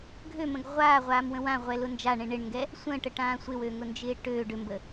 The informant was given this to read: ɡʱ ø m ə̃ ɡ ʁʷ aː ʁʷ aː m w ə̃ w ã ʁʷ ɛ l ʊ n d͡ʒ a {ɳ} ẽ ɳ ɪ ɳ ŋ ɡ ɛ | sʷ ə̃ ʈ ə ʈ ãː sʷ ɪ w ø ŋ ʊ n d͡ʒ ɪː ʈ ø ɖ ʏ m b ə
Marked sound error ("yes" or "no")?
no